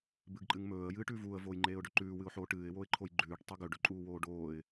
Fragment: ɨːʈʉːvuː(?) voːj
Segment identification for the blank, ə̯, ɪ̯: ə̯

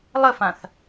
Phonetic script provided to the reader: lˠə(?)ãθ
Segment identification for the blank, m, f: f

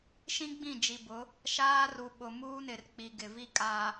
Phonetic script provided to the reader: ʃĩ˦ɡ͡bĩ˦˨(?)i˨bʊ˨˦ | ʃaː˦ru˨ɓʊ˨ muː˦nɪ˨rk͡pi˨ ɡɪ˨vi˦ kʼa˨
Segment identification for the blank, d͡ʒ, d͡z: d͡ʒ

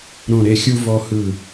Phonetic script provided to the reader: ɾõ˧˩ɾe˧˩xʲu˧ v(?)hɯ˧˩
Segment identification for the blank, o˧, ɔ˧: ɔ˧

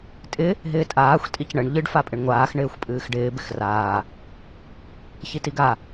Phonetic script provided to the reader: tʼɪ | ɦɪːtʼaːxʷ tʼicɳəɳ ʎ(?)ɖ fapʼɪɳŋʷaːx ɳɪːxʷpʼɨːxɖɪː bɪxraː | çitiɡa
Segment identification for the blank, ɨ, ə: ɨ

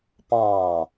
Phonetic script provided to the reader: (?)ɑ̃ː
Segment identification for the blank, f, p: p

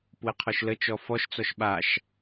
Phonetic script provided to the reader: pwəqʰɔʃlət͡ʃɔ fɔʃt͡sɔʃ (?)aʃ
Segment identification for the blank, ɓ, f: ɓ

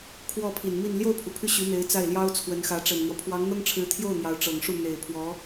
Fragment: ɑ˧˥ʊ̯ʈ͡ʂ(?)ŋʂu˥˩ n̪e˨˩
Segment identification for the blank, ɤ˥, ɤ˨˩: ɤ˨˩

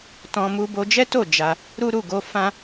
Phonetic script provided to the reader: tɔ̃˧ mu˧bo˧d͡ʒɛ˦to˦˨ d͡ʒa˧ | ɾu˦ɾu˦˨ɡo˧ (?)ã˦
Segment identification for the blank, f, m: f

